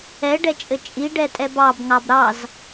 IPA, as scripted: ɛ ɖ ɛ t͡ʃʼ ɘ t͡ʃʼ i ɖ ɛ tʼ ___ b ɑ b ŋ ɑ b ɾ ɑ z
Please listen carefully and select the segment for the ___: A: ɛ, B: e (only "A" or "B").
A